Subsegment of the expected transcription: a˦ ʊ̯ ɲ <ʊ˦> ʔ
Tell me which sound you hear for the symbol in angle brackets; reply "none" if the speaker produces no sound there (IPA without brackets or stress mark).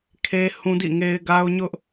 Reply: ʊ˦